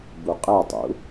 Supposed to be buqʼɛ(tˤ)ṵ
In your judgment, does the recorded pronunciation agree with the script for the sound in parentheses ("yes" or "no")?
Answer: yes